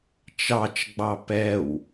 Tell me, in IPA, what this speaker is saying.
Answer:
t͡ʃɑt͡ʃɡ͡bɑ pɛw

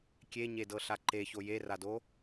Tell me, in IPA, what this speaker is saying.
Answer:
kʲeɲedɤɬa ǃeço jerado

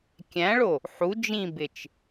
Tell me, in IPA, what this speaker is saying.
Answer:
kʲæ̃ɭo | ħu d͡ʒĩbɪt͡ʃ

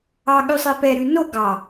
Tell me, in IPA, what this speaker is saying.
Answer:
ɑ ɠʉsˤɛpɛ ɾʉno ɡɑ

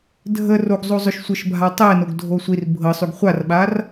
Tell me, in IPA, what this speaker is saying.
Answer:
dʱə roɡzˤozˤʊʃ sʷɤʃbʱa tˤɛnoɡdʱo sʷir bʱɤsˤʉɡ χʷarɓar

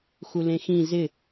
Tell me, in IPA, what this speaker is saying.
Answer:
xulẽxĩ zɪ

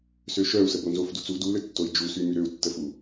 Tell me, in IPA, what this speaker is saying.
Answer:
søʃœu̯sə bonzofdut͡su duløtːoi̯ d͡ʒusy myɾøu̯tːəfu

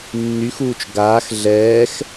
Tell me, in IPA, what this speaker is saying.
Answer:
nːyxuːt͡ʃ ɡaːx ɮɛːx

